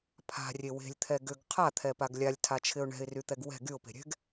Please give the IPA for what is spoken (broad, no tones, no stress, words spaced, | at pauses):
pʰa̤rʲe we̤lʲt̪ʰɛ ɡʏɡ qʰat̪ʰɛpaɡ lʲalʲtʰat͡ʃʰɪʊ̯ ɳɛ̤ɪ̯ryt̪ɛɡ wɛ̤ ɡyʊ̯pe̤ɾʲɛ̤ɡ